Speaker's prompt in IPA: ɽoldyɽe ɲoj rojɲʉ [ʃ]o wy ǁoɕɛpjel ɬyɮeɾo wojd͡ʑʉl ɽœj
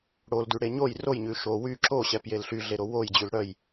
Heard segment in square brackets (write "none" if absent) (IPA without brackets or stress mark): ʃ